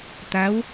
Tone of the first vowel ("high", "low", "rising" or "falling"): rising